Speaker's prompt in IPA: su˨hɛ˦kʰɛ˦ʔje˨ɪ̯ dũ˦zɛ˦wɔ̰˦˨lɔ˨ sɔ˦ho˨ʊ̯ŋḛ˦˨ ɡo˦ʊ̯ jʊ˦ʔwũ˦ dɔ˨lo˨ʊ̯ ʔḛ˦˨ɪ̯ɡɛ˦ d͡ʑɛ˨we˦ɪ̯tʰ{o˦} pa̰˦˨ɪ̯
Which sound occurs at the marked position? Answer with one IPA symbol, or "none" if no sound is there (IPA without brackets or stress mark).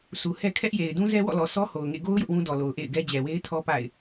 ɔ˦